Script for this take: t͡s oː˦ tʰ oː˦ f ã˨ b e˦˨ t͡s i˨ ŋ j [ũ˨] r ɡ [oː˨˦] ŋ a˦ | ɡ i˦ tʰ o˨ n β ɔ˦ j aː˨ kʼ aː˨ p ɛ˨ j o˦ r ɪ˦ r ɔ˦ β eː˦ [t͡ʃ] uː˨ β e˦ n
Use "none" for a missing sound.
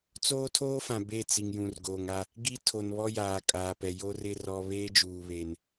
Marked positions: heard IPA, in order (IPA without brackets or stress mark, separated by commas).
ũ˨, oː˨, d͡ʒ